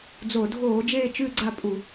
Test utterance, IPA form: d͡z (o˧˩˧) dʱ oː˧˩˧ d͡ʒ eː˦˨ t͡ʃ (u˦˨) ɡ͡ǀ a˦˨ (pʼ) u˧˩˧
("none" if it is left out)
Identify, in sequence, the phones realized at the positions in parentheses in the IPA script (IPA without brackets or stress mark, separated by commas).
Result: o˧˩˧, ʉ˦˨, pʼ